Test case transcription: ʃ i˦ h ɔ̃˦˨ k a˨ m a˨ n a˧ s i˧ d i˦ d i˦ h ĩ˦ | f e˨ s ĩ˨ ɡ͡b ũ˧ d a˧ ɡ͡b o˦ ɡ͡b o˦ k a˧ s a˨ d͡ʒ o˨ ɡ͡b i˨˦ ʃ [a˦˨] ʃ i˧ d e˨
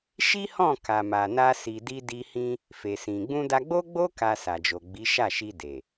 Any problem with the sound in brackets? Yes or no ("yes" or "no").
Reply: no